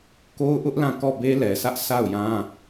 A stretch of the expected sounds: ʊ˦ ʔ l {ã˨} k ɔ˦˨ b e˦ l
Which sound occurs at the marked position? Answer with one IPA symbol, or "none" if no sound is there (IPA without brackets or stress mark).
ã˦˨